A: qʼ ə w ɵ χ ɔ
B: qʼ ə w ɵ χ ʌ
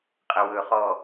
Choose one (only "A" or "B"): A